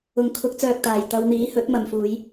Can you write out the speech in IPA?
ʊ˨˩ ŋ kʰ ʊ˨˥ k̚ t͡s œː˨ k̚ t̪ aː˨˩ j t̪ ɐ˨˧ w n̪ iː˨˥ h ɵ˨˥ t̚ m ɐ˨ m f uː˨˧ j

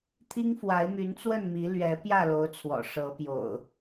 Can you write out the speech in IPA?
t̪ʰ i˦ ŋ f w a˨˦ ɪ̯ m y˨˦ n t͡s w ə˥˨ n m i˨˦ l ɥ ɛ˨˦ p j ä˥˨ l o˨˦ ʊ̯ t͡sʰ w ɔ̰˨˩ ʂ ɤ˨˦ p j o̰˨˩ ʊ̯

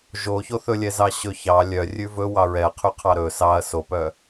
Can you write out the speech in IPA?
ʒ o ç o θ ɵ lʲ ɛ z ɑ ɕ ɵ ç ɑ lʲ œ rʲ ʉ v ɵ w ɑ ɹ ɛ ɐ̯ qʰ y qʰ ɑ ɾ ɵ s ɑ ɐ̯ s o p œ

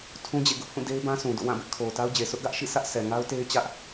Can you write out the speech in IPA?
tʰ ũ˦ d͡ʑ ḛ˦˨ ɡ ʊ˦ ʔ h ũ˦˨ d e˦ ɪ̯ b ã˦ sʰ ũ˨ d o̰˦˨ w ã˦˨ b ɪ˦ ʔ kʰ o˨ ʊ̯ t a˦ ʊ̯ d͡ʑ e˨ sʰ ʊ˦ ʔ ɡ ä˦ ʔ ʃ ḭ˦˨ sʰ ä˦ ʔ s ɛ˨ ŋ a˦ ʊ̯ t e˦ ɪ̯ t͡ɕ ä˦ ʔ

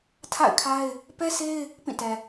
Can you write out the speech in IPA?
tʰ a̰˦˨ ɪ̯ kʰ a˦ ɪ̯ | p ɛ˦ sʰ e˦ ɪ̯ | p ĩ˦˨ t ɛ˨

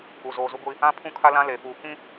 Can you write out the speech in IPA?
u˨ z oː˨ z u˦ ɡʷ i˦ | ã˦ pʰ ũ˦ kʰ a˦ l ã˦ l e˨ f uː˨ k ĩ˦

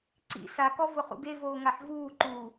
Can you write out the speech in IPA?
ǀ ḭ s a k ɔ v ʊ χ ṵ ɡ e v oː ŋ a ħ v uː ǃ uː

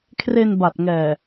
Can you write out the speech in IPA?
kʰ r e˧ n b a˨˩ t̚ ŋ ɛː˨˩

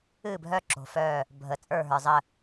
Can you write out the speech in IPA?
ɨː˥˩ bʱ œ˥˩ ǁ o̤˩ f œː˧˩ | bʱ əː˩ t͡sʼ ə˞˧˩ ɦ ə˞˩ zˤ ə˧˩

